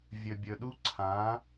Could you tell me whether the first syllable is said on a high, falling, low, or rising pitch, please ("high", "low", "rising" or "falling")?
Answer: low